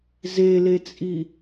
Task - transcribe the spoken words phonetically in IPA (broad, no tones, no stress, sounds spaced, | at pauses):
z e l e t͡sʼ i